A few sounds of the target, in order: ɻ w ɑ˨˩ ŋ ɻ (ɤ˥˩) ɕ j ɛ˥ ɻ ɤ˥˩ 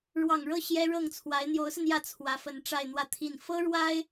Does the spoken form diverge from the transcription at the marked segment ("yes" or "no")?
no